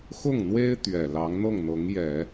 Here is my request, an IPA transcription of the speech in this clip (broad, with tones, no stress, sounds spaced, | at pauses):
x ʊ˥˩ ŋ n̪ w e˥ ɪ̯ t̪ ɥ ɛ˨˩ l ɑ˧˥ ŋ n̪ ɤ˥˩ ŋ n̪ ɤ˧˥ ŋ j ɛ˨˩˦